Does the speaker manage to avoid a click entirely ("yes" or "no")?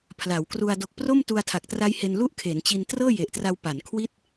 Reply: yes